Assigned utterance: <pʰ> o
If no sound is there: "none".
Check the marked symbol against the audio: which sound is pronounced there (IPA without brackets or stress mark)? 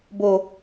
b